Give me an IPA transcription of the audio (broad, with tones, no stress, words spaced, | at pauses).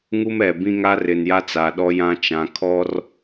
ŋu˦mɛ˨bĩ˦ŋa˦ rɪ˨n ja˦t͡sa˨ ɗɔ˦jã˦ t͡ʃã˨kʰɔ˦r